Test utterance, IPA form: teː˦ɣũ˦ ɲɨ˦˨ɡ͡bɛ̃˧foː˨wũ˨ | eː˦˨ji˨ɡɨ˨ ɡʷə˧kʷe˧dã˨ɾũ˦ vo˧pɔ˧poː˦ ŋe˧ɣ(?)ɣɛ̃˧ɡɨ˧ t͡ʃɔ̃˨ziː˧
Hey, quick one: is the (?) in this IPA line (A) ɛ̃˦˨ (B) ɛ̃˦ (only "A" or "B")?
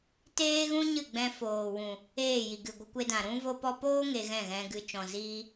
A